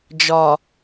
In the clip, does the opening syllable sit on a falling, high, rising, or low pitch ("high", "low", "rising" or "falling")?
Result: low